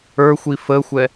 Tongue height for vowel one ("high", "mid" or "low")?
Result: mid